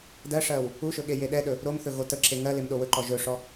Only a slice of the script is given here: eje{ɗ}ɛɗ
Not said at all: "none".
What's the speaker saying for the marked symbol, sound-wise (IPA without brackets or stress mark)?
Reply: ɗ